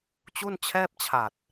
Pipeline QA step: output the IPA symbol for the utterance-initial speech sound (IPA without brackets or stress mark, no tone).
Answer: t͡ɕ